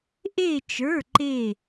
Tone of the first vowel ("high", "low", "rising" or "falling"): falling